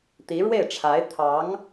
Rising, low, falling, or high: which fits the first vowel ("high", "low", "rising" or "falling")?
rising